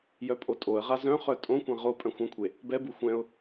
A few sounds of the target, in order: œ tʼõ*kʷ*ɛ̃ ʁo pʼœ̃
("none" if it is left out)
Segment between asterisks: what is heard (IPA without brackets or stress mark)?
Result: kʷ